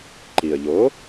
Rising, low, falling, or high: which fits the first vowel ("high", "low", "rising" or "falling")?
low